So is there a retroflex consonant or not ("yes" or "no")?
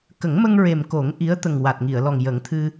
no